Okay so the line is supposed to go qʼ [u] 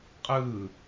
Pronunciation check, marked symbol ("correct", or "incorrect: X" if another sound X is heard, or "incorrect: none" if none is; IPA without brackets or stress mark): incorrect: ɯ